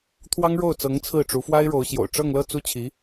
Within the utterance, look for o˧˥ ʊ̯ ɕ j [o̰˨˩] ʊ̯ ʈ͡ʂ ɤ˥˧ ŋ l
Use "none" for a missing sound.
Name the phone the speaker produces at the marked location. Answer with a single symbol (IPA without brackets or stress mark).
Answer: o̰˨˩